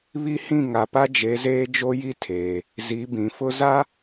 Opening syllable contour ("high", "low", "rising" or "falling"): high